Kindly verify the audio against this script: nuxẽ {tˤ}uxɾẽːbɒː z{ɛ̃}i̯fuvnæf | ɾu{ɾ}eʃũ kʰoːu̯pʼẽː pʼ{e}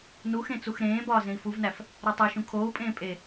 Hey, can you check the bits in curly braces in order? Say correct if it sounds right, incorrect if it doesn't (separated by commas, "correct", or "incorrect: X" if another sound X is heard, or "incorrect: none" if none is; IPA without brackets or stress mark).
incorrect: t͡s, incorrect: ẽ, incorrect: tˤ, correct